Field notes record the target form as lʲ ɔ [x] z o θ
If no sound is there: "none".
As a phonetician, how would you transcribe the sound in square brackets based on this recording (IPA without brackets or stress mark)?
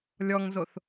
ŋ